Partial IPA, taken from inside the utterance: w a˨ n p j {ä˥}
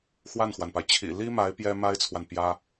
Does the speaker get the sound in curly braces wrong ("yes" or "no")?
no